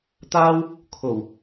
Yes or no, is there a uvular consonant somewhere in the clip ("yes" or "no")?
no